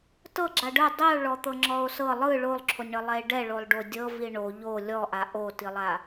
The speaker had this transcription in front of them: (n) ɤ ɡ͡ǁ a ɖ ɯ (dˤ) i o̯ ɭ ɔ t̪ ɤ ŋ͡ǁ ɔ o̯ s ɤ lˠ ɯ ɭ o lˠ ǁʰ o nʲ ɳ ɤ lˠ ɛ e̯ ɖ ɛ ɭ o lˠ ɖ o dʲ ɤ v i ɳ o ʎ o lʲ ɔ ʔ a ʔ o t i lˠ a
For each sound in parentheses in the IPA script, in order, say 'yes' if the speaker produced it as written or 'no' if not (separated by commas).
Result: no, yes